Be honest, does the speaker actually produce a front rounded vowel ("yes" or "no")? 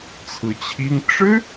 no